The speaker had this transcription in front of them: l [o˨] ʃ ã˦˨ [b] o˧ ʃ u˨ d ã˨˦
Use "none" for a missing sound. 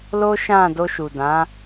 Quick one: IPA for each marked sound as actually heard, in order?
o˦, d

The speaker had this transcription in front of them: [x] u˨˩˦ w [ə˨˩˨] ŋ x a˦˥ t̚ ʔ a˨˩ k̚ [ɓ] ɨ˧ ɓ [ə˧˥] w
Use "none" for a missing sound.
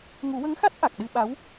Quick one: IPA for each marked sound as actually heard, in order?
ŋ, ə˧˥, ɗ, a˧˥

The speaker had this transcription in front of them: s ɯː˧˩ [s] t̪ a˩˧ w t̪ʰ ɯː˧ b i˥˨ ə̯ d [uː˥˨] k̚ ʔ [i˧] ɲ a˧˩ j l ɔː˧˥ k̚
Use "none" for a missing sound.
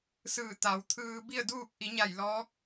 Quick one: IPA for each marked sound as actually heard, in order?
none, uː˥˨, i˩˧

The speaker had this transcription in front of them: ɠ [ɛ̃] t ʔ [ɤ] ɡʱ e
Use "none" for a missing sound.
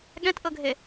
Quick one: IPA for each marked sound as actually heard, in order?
ɛ̃, ɤ

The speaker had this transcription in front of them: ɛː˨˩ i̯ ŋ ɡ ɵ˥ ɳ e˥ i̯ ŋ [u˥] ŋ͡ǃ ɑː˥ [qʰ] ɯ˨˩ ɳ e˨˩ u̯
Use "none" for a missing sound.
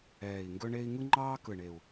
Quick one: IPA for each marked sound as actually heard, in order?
ɯ˥, k

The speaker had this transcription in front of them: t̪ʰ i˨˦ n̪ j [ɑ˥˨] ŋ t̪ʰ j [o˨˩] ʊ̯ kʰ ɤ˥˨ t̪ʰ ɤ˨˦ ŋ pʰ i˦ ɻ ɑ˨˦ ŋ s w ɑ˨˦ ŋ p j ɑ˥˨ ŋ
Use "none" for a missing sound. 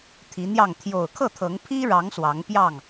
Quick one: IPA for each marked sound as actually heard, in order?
ɑ˥˨, o˨˩

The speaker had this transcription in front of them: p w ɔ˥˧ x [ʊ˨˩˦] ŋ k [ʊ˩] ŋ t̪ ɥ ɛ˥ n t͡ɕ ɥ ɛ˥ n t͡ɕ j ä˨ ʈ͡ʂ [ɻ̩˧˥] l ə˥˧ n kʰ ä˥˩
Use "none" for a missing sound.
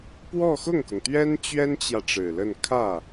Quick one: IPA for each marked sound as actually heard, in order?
ʊ˥˩, ʊ˩, ɻ̩˨˩

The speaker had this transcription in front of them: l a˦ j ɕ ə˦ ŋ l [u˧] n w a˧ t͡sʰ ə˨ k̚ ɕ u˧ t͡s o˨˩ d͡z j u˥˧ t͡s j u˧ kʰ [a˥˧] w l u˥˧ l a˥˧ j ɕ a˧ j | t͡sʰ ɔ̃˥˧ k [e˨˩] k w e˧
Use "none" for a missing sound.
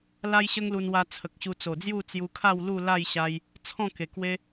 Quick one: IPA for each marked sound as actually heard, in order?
u˧, a˥˧, e˨˩

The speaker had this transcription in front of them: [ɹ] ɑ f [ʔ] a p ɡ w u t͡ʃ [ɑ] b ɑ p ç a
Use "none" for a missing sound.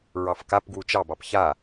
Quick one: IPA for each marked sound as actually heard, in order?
ɹ, k, ɑ

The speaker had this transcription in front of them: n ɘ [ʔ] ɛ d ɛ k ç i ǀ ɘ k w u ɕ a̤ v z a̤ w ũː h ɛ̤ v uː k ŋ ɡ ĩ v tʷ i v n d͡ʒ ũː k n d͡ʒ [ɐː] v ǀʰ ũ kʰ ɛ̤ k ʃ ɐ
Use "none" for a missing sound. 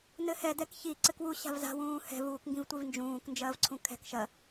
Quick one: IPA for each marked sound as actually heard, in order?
h, ɐː

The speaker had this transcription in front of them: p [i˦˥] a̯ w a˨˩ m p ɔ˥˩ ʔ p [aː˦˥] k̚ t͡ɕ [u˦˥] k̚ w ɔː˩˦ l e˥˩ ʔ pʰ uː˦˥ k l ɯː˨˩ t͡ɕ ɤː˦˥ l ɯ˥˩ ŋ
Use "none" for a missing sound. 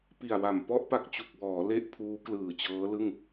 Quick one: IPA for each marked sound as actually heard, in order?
i˨˩, a˦˥, u˨˩

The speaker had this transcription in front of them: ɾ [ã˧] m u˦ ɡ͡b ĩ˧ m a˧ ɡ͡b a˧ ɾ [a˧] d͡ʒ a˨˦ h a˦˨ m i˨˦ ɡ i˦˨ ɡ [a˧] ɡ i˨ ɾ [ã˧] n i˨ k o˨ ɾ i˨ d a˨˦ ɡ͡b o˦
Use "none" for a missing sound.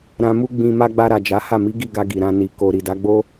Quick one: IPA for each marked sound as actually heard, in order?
ã˧, a˨, a˧, ã˧

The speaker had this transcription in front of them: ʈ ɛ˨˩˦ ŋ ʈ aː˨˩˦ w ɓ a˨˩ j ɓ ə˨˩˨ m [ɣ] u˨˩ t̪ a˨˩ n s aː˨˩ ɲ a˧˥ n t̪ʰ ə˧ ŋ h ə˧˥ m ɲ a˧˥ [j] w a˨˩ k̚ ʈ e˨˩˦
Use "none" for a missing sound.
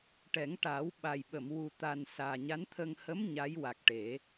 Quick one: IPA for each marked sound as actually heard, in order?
w, j

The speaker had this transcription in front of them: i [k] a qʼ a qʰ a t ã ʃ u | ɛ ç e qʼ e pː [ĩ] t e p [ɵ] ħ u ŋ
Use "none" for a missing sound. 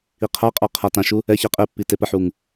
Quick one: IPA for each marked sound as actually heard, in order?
qʰ, i, ə

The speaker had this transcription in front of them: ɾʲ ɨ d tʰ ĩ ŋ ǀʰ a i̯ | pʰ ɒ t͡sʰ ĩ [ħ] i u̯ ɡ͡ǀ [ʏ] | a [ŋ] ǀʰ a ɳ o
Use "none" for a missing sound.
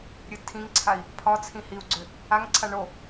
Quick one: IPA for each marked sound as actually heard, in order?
h, ʏ, ŋ

